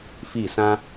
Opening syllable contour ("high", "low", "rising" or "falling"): falling